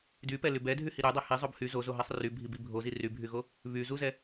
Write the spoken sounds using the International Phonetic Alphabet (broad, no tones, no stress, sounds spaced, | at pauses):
d y p ɛ l y b ɛ dʱ y h i ɾ y dˤ ɛ h i zˤ o b h y z o z o ɦ ɛ sˤ r y bʱ i b i bʱ o z i r y bʱ y ɣ o | β y z u z ɛ